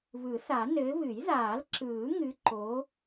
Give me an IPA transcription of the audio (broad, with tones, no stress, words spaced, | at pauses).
βɯ˨˩˦θa˨˩˦ nɘː˨˦βɨ˨˩˦j ðaː˨˩˦lǁɯː˨˩˦ŋɨ˨˦ǃoː˨˦